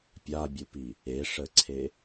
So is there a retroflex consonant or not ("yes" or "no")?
yes